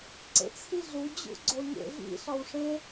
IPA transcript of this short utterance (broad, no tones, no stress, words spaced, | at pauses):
ǀḛt͡sʰiɮu d͡ʑṵɡ͡ǀoɲḛ vḭ ɬɒwʂẽ